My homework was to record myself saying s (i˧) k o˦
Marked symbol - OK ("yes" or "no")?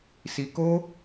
yes